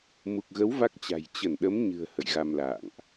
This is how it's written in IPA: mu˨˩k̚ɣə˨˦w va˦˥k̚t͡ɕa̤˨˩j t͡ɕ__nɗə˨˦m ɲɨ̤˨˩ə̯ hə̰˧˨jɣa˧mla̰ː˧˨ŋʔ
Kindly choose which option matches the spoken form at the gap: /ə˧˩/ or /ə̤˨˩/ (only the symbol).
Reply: ə˧˩